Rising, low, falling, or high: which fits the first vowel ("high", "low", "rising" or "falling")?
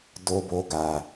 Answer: high